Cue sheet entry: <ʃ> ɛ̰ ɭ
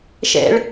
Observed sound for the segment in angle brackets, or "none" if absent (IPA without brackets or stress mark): ʃ